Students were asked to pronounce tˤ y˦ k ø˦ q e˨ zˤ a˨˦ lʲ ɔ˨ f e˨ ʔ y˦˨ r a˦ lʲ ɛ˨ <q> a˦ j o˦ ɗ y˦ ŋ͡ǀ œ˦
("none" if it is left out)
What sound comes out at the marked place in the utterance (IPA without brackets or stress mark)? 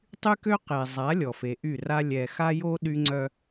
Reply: x